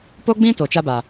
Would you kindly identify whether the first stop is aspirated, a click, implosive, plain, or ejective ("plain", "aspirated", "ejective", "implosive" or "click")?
plain